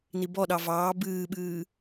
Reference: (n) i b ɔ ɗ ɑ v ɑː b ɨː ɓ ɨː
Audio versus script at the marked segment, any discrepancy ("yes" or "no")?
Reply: no